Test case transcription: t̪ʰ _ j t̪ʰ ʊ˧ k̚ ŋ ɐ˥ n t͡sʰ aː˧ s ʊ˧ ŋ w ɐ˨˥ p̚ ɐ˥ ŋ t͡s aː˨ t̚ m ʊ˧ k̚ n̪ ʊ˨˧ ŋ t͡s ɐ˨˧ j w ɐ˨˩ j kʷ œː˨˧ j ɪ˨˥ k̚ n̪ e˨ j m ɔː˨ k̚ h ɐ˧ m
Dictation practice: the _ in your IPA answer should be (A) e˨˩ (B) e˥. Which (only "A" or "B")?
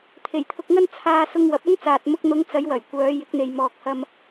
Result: A